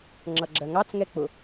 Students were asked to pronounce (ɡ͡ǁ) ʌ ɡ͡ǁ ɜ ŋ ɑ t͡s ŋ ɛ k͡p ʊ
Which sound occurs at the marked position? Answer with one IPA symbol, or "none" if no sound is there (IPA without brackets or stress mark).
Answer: ŋ͡ǁ